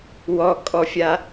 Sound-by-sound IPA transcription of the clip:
wɔkʼɔfʲa

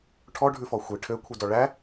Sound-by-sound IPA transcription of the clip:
ʈʰɔɖʱʉfɔ xʷi ʈʰøkʷʰidɔ ɭæ

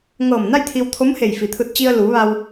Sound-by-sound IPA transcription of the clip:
ŋɤː˧˩mna˥˨jt̪ʰi˧wt̪ʰo˧˥m he˧˩jfi˩t̪ʰɯː˧t̚ t͡ɕi˧ə̯luː˩˧ ʋa˧w

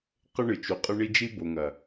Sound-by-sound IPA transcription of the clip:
qɘ˦ɳɨ˨t͡ʃu˨ qʼɨ˦ɳi˦ d͡ʒi˦bo˨ŋɐ˨

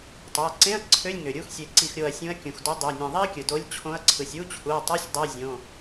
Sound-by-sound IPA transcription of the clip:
tˤo˩˧˩ɐ̯ǀẽ˧˥˧ɐ̯ ǀʰø˧˥˧lʲŋø˩ɾʲu˧˥˧x sʲe˧˩ǀi˧˩xɾʲo˧˩ɐ̯sʲũ˨˥ɐ̯ kʲũ˩xdo˨˥ dˤø˩˧˩nʲẽ˧˩ðˤi˥ɐ̯kʲɯ˩ do˨˥lʲ t͡ɕʰõ˨˥ɐ̯ǀʰɯ˩sʲ u˧˥˧t͡ɕʰu˩˧˩ɐ̯tˤø˧˥˧sʲ dˤe˧˥˧zʲõ˩˧˩

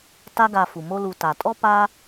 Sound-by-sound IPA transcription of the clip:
ta˦ɡa˧ fu˨mo˦lu˧ ta˨tʼɔ˦pa˦

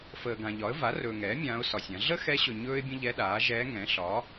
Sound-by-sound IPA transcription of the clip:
fəː˨ɡã˨ʎɒ˩˥ə̯ va˩˥rɵː˨ŋɛː˩˥ mʲãː˧˥ʊ̯sɒ˨sʲã˩˥ ɮə˥xɛ˧˥ɕɵ˨ ɲɵː˥ɪ̯bʲə̃˥ʎɛ˧˥ɗaː˩˥ ʒɛː˧˥ ŋɛ̃˩˥ɬɒ˩˥

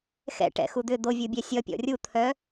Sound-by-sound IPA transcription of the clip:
xɛ̰ ʈɛ̰xud̪ʏ d̪ovʲɯ bʲɛsʲʌ pʲɔ̰rʲut̪ʰœ

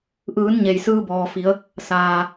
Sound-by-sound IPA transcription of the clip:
ʔɯː˩˧n ɲe˩jsɯː˧ bɔː˩fi˩˧ə̯ | saː˩

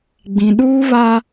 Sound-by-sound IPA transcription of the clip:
ɡ͡bĩ˨ɗuː˦βa˦

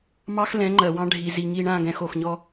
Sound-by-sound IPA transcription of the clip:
mɑ˦xlɛ̃˨˦ŋ͡ǃɜ˨wɑ̃˦ ɖʱi˨zi˨ŋi˦˨ ɳã˦˨ɡɛ̃˨x o˨xɲɔ˦

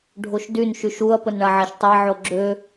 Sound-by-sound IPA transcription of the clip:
ɖʱoʃdyn ʃyʃuɐ̯ pənɳaʕaʃtˤa ʕoɡ͡ǁø

